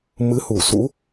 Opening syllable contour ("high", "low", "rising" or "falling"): rising